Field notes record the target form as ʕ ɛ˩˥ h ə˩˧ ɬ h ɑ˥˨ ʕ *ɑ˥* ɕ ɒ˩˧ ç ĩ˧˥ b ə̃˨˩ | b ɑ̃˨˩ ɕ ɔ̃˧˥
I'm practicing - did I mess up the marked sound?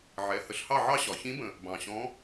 no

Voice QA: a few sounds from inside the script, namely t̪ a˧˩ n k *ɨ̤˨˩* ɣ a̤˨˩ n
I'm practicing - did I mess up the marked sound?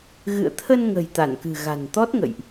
no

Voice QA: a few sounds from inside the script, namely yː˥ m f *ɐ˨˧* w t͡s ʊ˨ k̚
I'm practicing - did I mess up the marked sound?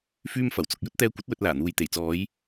yes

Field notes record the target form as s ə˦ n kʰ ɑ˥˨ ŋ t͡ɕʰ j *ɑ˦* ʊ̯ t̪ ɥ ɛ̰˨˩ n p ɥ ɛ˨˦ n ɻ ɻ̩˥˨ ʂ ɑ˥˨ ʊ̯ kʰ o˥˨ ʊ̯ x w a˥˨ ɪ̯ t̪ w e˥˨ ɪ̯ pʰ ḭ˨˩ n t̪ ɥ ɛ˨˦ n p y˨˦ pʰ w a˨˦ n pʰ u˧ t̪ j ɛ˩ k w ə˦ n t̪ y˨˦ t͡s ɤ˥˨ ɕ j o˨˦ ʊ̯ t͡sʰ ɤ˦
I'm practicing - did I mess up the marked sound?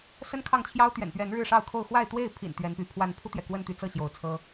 no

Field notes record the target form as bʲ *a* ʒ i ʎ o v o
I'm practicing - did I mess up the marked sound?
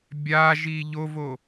no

